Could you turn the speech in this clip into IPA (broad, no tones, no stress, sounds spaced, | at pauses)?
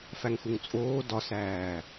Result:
f æ ŋ x u ŋ t͡sʼ oː d ɒ s æː